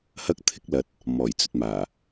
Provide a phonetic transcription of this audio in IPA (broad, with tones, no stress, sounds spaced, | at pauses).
h ɐ˥ k̚ t̪ʰ ɪ˥ k̚ l ɐ˨˥ t̚ | m ɔː˨˩ j t͡s ɵ˧ t̚ m aː˨˩